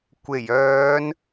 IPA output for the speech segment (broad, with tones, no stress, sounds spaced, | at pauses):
kʷ e˨˩ j œː˨˧ n